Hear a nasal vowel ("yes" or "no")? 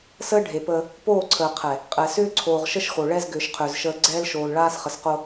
no